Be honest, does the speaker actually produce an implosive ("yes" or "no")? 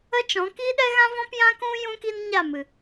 yes